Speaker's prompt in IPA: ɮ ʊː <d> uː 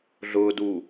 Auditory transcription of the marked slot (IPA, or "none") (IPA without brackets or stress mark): d